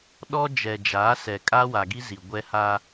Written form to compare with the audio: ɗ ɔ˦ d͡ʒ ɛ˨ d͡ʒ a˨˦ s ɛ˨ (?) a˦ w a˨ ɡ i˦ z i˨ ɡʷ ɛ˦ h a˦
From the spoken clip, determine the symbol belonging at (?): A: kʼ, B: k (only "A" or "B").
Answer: A